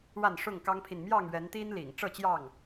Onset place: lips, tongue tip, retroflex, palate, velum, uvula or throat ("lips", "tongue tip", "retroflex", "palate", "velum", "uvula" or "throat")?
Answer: retroflex